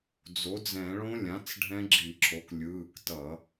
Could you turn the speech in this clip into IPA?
d͡zo˩˥d͡zɛ̃˧˩˧ ɭõ˦˥ lʲã˩˥t͡s ɖʱɛ̃˦˥ɡ͡ǁi˧˩˧ǁʰo˩˥k lʲɯː˩˧˩ktʌ˧˩˧

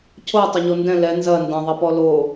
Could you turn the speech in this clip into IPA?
cʰo tˤʊɲondɛ̃ lɛ nzɐ ndɐ̃ðˤɐpɔ lo

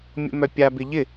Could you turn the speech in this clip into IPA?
mʲo̰mœpʲa bɪʎɪ

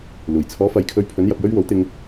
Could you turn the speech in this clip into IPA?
luː˨˩j t͡sʰɔː˨˥fɐ˨jkʰɵ˧ɥpʰɵ˨˥n jɐ˨p̚jɵ˥ɥwo˨˥w t̪ɪ˧ŋ

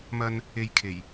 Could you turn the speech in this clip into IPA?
mɐ˧n | e˧jkʰe˨˩j

